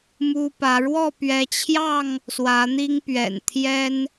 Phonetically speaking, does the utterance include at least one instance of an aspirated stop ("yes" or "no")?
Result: yes